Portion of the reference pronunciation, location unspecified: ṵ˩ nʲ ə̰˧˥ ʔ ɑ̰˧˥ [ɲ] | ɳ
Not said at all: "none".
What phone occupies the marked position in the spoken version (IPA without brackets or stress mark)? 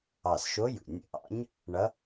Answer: ɲ